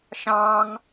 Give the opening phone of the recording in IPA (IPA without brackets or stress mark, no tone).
ʃ